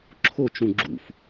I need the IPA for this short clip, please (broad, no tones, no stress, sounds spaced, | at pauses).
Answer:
ǁʰ o t͡ʃ ũ ɡ͡ǁ ṵ f